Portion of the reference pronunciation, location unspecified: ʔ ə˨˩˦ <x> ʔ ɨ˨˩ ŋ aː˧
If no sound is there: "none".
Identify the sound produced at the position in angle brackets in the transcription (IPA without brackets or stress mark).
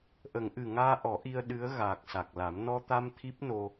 ŋ